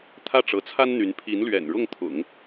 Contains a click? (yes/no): no